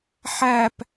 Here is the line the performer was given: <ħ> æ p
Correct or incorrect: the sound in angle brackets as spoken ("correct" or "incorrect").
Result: correct